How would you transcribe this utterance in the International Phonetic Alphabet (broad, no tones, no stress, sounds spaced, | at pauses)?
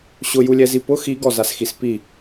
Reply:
ɕ ʊ j u lʲ ɛ z i p ʊ x i ɡ ɔ z a s x i s p i